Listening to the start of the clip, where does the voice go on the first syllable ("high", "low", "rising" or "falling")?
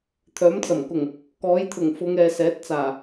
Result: rising